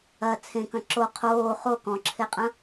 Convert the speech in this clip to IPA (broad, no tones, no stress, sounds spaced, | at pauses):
ɐ t͡sʰ ẽ k ɐ̃ ǁ o qʰ oː χ o k ɔ̃ ǁʰ e qʼ ɐ̃